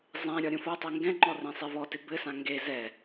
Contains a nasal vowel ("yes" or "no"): yes